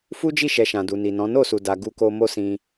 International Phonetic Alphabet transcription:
fu˦d͡ʒi˦˨ʃɛ˨ ʃã˨du˨ni˨nɔ̃˨˦ no˦˨su˨da˨ ɡu˧ko˧mo˦sĩ˧

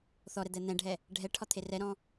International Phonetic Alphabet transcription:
θɔɾɛ d̪ɛn̪ɛ̃ɖʱɛ | ɖʱɛʈʰɒ t̪ʰerɛɾɔ̃

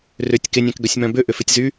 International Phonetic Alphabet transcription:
rʏtʲ kɪnʲɛ̃kɡœsʲmœ̃ bʏʔʏfɪtʲzy

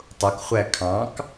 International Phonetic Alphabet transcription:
tˤʊkχʷæ kʰɑ̃k

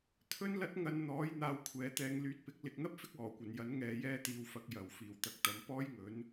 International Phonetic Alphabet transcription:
t̪ʰɵ˥nlɐ˥t̚ ŋɐ˧nn̪ɔː˨˥j n̪aː˧wkʷʰɛː˨˧t̪ɛː˧ŋ lyː˨˥t̚pɪ˧k̚ lɪ˨k̚n̪ɐ˥p̚fɪ˥k̚ ɔː˨˩kʷɐ˨˩njɐ˨˥n ŋɛː˧jɛː˥t̪iː˧wfɐ˧k̚ jɐ˨w fiː˨˩wt̪ɐ˨k̚t̪ɐ˨˧m pɔː˥jŋɵ˨˥n

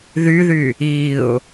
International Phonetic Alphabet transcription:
ðyðy | iʊ̯

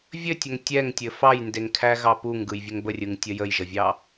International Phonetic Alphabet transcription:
vʲɘtʲəŋ tʲɛŋtʲɘ fɑjndeŋkʰæɣɑ puŋɡɯjvʲɘŋ bərʲɯŋtʲə jəjʒəvʲɑ

